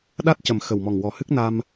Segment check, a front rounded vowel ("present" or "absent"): absent